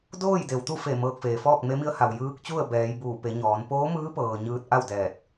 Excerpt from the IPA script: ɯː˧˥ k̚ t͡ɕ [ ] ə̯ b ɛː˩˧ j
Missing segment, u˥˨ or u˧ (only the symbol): u˥˨